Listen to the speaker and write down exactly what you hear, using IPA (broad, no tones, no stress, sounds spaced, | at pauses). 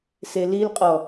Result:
s e l i l qʼ ɔ